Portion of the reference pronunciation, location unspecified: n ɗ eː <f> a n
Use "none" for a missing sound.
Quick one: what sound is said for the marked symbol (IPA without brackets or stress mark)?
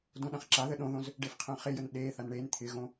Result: θ